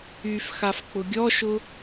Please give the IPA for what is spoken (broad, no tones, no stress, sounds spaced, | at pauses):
y f x a f k͡p ʊ ɡʲ ɔ ʃ ʊ